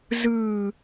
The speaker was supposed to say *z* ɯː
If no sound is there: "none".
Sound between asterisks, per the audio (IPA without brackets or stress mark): z